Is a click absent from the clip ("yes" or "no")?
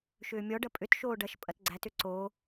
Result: no